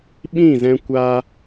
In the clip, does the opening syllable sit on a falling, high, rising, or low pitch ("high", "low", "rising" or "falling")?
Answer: falling